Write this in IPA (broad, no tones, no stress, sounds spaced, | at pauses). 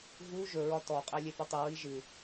ɣ u ʒ ɵ ɹ ɒ t ɔ qʼ ɛ lʲ e p ɵ tˤ ɨ ɹ i ʒ ɨ